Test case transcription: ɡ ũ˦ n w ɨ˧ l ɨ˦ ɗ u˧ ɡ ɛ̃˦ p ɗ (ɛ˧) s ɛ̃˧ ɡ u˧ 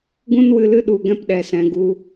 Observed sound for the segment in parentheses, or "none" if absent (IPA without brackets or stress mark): ɛ˧